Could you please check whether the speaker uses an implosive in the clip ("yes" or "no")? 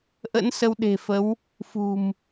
yes